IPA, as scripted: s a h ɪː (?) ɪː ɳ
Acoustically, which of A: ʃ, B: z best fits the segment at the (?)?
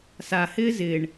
B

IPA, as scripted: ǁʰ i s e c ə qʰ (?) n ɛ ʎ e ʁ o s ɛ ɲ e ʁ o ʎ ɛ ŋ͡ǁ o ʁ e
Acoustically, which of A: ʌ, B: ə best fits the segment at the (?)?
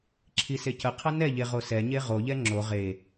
A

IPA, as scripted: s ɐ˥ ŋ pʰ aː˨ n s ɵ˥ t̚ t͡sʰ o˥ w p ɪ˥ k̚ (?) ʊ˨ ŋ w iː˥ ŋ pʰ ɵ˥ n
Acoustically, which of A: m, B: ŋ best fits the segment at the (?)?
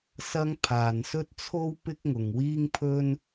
B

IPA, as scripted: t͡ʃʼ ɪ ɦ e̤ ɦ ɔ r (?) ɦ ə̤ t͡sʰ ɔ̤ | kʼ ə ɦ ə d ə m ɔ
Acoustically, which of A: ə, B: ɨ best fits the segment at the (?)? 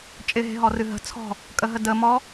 B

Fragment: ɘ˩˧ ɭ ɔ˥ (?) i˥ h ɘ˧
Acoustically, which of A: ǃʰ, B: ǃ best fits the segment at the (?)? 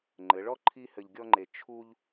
A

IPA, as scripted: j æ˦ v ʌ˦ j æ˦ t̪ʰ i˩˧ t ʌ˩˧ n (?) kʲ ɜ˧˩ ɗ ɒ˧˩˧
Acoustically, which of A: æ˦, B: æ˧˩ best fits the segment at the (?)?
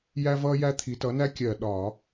A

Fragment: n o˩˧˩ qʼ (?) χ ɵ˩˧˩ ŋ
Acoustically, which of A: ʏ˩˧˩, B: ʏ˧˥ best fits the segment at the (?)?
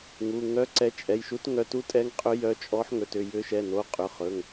A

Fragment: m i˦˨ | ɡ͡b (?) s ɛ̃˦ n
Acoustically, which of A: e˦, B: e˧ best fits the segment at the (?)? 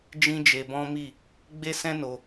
A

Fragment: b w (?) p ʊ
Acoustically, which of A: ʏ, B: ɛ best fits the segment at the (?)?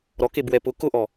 B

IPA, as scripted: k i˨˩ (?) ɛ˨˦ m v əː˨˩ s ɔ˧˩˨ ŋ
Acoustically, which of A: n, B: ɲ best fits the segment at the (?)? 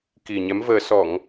B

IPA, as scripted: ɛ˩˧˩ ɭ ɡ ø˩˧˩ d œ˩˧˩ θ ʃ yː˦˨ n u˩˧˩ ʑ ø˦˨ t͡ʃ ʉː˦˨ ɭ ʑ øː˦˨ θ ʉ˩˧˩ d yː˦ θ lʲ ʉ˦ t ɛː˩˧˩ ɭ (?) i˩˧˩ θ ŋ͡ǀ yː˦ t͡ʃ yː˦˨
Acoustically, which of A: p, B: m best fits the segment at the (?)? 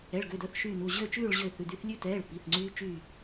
A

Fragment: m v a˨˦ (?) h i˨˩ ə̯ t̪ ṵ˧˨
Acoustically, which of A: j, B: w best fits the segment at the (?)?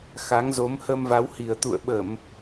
B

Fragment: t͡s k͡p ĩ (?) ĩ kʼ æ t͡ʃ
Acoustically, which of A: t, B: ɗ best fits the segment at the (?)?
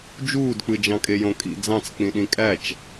B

